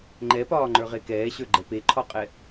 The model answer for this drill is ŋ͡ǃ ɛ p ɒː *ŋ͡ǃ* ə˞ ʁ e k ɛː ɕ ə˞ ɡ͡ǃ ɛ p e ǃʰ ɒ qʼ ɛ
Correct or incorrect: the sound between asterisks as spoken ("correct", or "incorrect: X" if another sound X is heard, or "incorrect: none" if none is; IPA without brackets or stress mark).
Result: correct